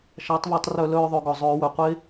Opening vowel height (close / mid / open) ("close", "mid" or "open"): open